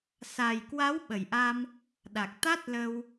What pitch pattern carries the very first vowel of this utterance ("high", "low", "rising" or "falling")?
low